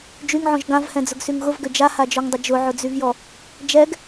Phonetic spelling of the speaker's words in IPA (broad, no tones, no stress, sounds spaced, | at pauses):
d͡ʒ y ŋ ʕ ɔ̃ ʒ ɡ ã v h ɛ̃ d͡z ʊ ɡ s y ŋ ɣ ʊ v ɡ ʏ d͡ʒ a h a d͡ʒ ɔ ŋ dˤ ʏ d͡ʒ ʊ ʕ ʊ d͡z y v j ɔ | d͡ʒ ɛ ɡ